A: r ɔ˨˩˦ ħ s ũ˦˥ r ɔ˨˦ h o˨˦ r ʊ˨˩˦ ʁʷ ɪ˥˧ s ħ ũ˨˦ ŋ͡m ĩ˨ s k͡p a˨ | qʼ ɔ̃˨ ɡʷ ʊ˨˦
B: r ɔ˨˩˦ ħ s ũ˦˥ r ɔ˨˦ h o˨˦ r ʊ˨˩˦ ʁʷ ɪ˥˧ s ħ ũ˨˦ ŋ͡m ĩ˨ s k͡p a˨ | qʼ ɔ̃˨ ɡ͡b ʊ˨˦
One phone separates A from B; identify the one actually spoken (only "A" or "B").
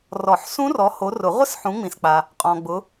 B